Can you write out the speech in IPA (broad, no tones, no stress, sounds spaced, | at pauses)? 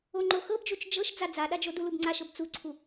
o ŋ͡ǃ o x ɤ b d͡ʒ u t͡ʃ d͡ʒ ɤ ʃ d͡z a d͡z a ɗ a d͡ʒ o d u l u b ŋ͡ǀ a ʃ ɤ b t͡s u ǀʰ u